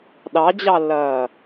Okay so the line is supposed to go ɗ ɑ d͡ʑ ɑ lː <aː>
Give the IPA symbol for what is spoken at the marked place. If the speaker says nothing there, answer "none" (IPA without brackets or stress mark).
ɐː